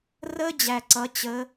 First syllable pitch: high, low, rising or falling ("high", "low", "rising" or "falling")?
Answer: high